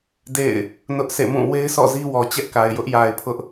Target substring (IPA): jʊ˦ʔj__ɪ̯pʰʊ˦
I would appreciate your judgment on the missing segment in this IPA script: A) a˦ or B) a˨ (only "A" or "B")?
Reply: B